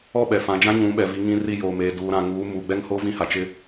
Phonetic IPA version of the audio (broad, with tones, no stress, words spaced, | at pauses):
ɔ˦˨ɓɛ˨fã˨d͡ʒã˦ ɲũ˨˦ɓɛ˨vi˨˦ ŋĩ˦ri˦˨joː˨meː˨ duː˨ɾã˨ŋuː˨˦ muː˨ɡ͡bɛ˦ŋho˦ vĩ˦ha˨t͡ʃɪ˦